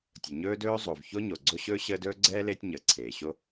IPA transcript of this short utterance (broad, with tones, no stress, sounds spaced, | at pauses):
tʲ ə˩ ɲ ɵː˥ d ɵː˥ zˤ o˩ v ç o˥ ɲ o˩ ɡ͡ǀ o˦ ɕ ɵː˥ ɕ əː˦ d ɵː˥ ɡ͡ǀ ɛː˥ l eː˦ tʲ ɲ əː˩ ǀʰ eː˩ ɕ o˥